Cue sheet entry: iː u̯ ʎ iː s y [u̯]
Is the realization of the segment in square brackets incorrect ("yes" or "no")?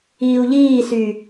yes